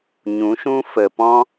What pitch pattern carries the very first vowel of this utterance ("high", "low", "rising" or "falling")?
rising